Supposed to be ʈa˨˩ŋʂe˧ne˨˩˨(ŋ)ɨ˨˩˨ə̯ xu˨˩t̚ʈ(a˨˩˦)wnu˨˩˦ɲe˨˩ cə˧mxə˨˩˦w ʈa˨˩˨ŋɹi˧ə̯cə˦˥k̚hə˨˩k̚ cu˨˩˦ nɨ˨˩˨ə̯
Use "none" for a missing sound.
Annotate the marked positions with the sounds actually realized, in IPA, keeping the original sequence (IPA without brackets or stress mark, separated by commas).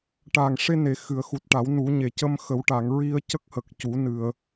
x, a˨˩˦